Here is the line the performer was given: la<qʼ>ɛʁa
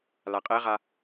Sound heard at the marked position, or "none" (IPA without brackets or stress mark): qʼ